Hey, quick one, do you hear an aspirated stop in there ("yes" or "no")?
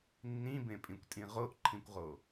yes